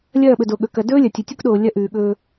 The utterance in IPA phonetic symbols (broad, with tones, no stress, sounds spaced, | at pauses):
lʲ ɐː˦˨ ɓ ɵ˨ d o˨ ɠ ɵ˨ k ɐ˨ d ɵː˦ lʲ ɐ˨ tʲ ɵ˨ tʲ u˦ k ɗ oː˨ lʲ ɐ˦ ʔ ʉː˨ ɠ ɵː˦